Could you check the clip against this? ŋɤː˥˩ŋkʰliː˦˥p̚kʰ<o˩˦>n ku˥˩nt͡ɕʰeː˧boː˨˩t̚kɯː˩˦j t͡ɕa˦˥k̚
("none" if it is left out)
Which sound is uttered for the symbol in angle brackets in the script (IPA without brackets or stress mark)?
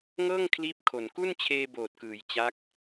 o˨˩